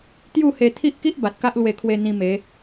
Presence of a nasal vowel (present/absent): present